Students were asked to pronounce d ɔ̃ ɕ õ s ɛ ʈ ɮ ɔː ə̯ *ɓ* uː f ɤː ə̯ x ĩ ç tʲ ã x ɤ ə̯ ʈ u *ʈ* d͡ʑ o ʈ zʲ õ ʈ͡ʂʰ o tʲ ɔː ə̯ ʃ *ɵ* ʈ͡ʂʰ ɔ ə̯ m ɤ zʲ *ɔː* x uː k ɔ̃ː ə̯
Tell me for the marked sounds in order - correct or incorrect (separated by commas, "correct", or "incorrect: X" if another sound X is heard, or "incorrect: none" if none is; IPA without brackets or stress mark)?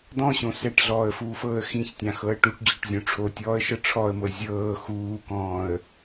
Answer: incorrect: f, correct, incorrect: ɤ, incorrect: ɤː